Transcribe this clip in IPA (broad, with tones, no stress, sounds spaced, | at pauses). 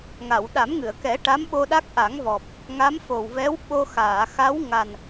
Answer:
ŋ a˨˩˨ w ɗ a˨˩˦ m ŋ ɨ˨˩˨ ə̯ k ɛ˨˩˦ ʈ a˧˥ m ɓ o˧ ɗ a˦˥ k̚ ʔ a˨˩˦ ŋ v ɔ˨˩ p̚ | ŋ a˧˥ m f o˨˩ w v ɛ˧˥ w ɓ o˧ x aː˨˩˨ x a˧˥ w ŋ a˨˩ n